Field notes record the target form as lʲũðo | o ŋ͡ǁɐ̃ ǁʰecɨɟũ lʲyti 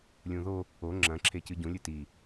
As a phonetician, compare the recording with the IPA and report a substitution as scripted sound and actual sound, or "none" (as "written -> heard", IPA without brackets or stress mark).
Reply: y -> ɨ